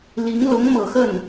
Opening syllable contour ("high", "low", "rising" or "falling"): rising